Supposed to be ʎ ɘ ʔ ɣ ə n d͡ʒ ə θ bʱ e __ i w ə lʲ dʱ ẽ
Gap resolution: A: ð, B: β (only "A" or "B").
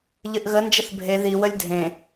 A